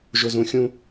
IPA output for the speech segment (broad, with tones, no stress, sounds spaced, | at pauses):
ʒ ʊ˧ z ũ˧ xʲ ũ˥